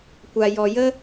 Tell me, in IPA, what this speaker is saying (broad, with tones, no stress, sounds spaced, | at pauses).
kʷ a˧ j ɔ˧ j ə˦